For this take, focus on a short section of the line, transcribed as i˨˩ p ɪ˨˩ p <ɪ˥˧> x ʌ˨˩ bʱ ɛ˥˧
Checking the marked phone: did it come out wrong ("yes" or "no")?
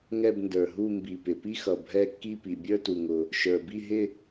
yes